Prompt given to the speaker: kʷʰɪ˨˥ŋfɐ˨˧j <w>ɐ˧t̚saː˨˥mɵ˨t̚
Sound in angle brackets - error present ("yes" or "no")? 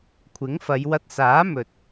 no